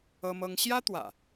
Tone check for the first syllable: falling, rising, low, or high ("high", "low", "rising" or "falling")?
high